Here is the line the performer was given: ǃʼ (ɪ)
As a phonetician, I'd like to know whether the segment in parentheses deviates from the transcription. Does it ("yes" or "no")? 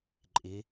no